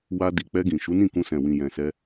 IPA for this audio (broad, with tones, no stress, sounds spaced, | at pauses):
w a˧ d i˨ k͡p ɛ˧ ɡ ĩ˨ ʃ u˨˦ n ĩ˦˨ k ũ˧ s ɛ̃˨ w ĩ˨ j ɛ̃˨ s ɛ˧